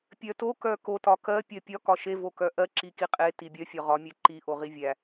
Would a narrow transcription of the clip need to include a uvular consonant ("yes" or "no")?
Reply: yes